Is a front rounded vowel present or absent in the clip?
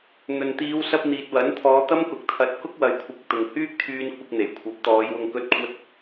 present